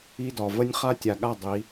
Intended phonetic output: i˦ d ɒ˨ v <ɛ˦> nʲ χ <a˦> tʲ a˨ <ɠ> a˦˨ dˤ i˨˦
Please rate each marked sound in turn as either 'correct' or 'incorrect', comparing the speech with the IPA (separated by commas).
incorrect, correct, correct